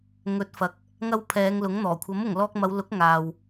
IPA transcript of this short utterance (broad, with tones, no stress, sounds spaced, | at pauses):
ŋ ɵ˨˥ t̚ f ɐ˨ k̚ | ŋ ɐ˧ w pʰ ɛː˨˧ ŋ l ʊ˨˥ ŋ n̪ ɔː˨˩ kʷʰ ɐ˨˥ m ʊ˨˩ ŋ l ɔː˧ k̚ m ɐ˨˧ w l ʊ˨˥ k̚ ŋ aː˨ w